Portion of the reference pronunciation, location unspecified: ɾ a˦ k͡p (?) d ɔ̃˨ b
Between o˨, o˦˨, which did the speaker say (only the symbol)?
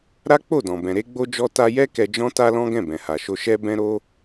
o˦˨